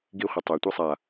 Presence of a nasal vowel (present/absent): absent